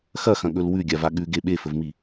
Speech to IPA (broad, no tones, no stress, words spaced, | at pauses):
xɐxɐ̃ɠɵl wʉɡʲava ɠʉɡe ɓefɵvmi